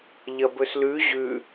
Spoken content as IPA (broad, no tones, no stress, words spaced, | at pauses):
ʎɐbɵslʉ ʑʉ